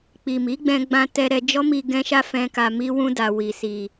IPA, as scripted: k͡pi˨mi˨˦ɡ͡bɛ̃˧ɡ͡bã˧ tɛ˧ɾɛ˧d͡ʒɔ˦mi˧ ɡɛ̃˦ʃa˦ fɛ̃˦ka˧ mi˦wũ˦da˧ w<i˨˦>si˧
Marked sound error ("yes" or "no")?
yes